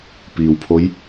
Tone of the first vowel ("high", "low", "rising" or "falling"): low